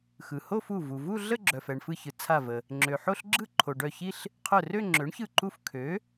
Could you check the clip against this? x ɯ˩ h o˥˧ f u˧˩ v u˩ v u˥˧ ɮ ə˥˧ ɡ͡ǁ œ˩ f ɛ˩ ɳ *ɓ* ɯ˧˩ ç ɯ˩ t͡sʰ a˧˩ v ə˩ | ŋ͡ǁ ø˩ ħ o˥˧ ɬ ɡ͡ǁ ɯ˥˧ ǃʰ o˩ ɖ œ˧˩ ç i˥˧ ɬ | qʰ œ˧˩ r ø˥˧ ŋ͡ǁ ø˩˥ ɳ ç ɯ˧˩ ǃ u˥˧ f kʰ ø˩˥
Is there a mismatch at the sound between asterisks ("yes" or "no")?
yes